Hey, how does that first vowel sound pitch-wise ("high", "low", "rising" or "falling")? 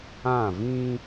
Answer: falling